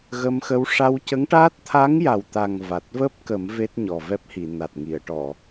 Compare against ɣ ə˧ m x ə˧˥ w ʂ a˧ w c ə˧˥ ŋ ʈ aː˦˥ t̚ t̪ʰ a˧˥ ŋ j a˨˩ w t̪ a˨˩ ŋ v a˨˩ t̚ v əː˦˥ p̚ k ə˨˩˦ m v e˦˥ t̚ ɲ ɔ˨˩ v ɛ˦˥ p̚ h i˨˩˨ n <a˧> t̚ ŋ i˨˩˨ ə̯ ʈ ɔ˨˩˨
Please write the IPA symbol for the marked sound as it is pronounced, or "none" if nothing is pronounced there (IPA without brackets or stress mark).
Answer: a˨˩